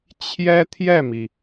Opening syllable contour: high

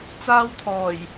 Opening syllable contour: high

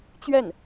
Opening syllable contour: falling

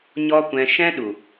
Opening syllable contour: high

